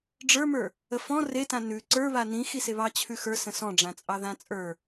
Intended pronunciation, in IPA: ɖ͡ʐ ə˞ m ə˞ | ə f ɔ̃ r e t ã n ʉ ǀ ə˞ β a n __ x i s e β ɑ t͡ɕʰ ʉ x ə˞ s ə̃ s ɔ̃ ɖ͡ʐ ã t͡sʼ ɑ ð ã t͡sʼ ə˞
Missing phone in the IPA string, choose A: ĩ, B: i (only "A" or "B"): A